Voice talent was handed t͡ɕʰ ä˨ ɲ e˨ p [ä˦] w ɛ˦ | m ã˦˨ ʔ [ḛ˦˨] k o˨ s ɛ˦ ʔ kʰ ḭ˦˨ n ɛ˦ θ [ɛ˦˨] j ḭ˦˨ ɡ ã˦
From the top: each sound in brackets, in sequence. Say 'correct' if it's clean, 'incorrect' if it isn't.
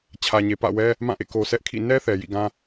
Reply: incorrect, correct, incorrect

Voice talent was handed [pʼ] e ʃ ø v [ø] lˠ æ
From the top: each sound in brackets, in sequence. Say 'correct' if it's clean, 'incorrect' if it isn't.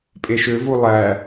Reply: correct, incorrect

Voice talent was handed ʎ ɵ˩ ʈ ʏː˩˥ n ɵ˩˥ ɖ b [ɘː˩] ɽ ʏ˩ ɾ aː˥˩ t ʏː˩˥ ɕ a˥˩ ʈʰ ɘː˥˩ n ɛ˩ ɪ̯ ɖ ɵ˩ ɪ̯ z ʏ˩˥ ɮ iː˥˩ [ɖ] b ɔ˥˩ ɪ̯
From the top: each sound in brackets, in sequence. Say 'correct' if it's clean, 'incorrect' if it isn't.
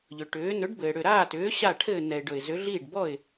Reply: correct, correct

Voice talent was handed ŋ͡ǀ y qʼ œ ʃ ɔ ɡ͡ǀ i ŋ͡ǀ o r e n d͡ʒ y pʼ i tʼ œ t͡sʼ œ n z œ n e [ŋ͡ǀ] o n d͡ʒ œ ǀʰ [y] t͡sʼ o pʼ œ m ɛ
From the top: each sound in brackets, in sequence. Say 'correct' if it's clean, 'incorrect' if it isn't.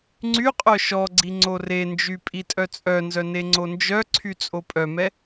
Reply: correct, correct

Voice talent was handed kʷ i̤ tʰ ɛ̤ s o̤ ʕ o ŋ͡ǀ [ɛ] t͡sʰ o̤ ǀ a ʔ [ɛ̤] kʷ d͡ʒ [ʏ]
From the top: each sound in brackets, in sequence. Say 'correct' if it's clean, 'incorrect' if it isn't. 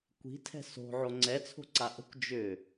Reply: correct, incorrect, correct

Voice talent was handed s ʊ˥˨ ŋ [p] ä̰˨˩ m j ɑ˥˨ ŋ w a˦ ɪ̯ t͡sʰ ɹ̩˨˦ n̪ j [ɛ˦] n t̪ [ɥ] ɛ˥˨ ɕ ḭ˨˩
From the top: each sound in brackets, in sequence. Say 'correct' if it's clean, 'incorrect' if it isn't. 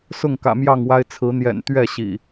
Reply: incorrect, incorrect, correct

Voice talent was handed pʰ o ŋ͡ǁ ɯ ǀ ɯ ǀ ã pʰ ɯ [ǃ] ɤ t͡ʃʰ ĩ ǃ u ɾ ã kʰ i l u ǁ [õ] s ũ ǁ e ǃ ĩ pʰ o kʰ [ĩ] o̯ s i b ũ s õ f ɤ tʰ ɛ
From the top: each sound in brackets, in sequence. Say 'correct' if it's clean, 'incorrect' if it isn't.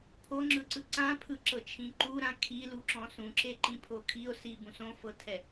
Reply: incorrect, incorrect, incorrect

